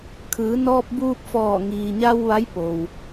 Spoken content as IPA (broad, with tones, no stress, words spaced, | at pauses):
kʰɯː˩˧nɔː˧p̚buː˧p̚fɔː˧˩ ŋiː˩ɲa˧w ʋa˧˥jpo˩w